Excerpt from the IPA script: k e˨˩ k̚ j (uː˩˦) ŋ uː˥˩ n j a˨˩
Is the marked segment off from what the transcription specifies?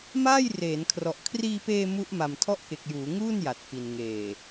no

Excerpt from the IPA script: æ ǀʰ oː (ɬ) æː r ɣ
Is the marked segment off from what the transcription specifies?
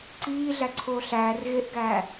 no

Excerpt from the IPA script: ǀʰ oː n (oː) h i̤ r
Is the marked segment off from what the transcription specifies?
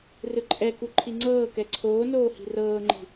no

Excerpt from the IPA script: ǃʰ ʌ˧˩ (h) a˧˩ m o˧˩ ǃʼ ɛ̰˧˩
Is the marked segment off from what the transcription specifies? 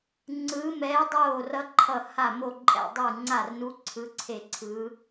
no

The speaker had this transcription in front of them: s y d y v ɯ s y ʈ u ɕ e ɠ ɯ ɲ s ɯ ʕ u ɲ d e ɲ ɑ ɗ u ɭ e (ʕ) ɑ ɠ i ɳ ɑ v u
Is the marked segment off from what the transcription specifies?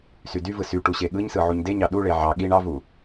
no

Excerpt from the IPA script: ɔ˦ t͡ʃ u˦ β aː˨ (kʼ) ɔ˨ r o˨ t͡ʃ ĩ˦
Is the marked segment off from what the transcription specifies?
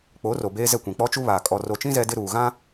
no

